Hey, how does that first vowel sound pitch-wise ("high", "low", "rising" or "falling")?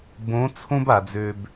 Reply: rising